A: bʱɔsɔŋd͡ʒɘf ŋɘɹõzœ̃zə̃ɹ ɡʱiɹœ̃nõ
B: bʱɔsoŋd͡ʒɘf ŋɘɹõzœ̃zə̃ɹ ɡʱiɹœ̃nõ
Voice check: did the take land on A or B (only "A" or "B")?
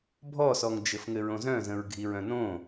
A